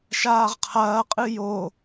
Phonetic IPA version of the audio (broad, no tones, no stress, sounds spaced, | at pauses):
ʃ aː ʁ qʰ ɐː qʼ ɨ j o